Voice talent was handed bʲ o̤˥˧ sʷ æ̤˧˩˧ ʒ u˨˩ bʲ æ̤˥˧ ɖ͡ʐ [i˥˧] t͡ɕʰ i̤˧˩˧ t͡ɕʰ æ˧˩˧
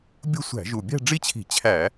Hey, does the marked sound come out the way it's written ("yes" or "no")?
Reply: yes